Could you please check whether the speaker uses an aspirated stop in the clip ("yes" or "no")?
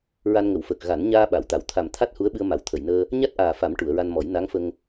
yes